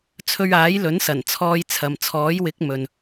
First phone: t͡sʰ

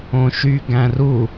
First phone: õ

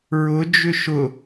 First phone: ɹ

